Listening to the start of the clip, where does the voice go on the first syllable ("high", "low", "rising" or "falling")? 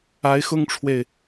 rising